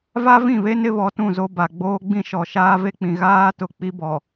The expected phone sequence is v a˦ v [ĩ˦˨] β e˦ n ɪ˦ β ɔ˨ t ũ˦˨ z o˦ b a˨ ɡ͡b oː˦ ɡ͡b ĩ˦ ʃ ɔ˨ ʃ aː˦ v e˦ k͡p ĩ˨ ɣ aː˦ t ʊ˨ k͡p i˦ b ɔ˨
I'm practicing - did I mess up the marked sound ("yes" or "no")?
no